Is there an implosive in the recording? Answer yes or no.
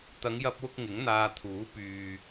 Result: no